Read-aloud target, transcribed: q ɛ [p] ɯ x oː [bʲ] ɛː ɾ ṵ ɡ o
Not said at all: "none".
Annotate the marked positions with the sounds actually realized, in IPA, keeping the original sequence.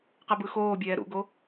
b, bʲ

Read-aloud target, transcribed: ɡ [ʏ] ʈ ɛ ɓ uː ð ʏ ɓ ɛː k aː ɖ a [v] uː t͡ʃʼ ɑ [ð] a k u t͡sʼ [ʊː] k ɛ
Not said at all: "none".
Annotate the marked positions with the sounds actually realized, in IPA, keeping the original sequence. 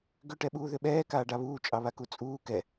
ʏ, β, β, uː

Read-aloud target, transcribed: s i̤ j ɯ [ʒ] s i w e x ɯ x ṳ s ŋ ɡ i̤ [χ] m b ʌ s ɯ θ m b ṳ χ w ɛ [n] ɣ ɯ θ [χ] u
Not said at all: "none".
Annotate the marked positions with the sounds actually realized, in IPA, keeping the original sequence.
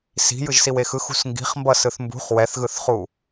ʒ, χ, θ, χ

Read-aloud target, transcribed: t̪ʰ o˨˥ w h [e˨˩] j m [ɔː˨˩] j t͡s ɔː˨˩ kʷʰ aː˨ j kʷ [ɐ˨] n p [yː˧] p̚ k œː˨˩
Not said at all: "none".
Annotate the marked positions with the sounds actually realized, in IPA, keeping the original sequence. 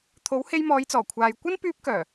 e˧, ɔː˨˧, ɐ˥, yː˧

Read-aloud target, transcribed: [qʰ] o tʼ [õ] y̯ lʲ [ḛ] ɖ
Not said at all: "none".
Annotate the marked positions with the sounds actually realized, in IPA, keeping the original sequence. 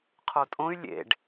qʰ, õ, ḛ

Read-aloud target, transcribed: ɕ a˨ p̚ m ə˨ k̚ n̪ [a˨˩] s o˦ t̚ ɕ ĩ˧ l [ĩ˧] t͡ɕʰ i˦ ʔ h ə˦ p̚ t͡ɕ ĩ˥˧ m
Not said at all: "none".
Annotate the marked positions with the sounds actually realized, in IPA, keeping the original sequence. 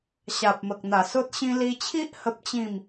a˨˩, i˧

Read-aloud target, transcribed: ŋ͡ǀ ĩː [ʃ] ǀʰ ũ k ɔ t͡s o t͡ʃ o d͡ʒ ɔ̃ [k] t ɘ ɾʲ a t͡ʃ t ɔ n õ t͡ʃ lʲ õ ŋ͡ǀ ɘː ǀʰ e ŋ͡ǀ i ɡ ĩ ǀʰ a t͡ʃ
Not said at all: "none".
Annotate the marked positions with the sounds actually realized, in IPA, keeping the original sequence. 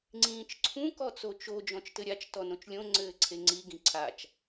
t͡ʃ, t͡ʃ

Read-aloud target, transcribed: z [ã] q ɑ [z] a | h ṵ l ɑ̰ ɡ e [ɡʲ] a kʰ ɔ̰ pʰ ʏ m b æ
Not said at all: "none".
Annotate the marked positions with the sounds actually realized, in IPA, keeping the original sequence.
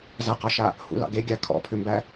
a, ʃ, ɡʲ

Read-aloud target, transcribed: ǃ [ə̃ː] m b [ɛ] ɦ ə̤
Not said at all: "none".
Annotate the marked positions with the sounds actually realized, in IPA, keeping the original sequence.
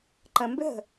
ə̃, ʏ

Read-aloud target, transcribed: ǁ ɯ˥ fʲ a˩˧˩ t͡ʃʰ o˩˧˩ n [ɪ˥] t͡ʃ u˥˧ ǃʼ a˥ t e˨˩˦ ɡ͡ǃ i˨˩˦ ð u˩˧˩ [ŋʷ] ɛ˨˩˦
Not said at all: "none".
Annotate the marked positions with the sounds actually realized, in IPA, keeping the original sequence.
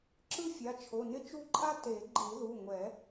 ɪ˥, ŋʷ

